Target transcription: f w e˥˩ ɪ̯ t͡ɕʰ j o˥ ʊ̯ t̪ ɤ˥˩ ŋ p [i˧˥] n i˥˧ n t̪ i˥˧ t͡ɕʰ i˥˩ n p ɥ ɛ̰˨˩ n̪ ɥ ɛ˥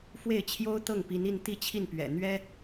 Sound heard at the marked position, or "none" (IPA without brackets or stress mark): i˧˥